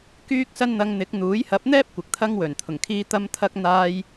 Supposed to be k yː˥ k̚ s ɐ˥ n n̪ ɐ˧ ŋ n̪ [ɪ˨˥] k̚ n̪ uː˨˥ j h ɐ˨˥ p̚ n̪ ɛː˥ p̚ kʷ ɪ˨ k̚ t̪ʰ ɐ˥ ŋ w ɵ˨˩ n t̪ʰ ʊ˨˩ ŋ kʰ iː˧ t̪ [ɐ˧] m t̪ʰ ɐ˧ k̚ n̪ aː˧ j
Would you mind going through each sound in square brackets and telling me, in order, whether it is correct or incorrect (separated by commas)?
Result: correct, correct